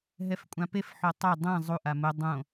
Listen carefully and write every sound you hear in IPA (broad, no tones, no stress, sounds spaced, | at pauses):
ɦ ɛ f kʷʼ ã p e f ħ o tˤ o dˤ ɛ̃ zˤ u ʔ a m ʊ dˤ õ